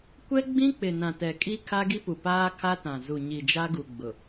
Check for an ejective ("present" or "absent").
present